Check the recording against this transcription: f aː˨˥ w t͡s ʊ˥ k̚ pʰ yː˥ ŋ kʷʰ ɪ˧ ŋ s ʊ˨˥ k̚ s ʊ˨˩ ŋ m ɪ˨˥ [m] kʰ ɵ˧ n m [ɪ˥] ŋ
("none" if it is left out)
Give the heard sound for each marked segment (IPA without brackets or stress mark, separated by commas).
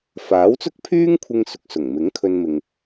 ŋ, ɪ˨